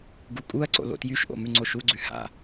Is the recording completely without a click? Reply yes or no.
no